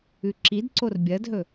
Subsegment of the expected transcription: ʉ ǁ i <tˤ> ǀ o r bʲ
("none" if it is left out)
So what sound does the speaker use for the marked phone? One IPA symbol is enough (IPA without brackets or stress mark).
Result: d